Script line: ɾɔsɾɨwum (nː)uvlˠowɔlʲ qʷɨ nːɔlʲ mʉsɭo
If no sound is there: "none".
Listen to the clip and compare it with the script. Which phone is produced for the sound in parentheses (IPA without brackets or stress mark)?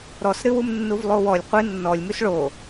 nː